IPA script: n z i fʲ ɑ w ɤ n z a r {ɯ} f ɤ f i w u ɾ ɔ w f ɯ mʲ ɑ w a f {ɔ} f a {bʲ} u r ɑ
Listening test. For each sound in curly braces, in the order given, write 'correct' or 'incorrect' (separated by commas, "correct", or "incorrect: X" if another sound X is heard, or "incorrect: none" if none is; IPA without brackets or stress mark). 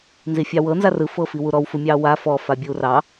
correct, correct, correct